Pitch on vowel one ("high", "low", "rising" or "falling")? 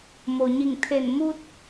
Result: low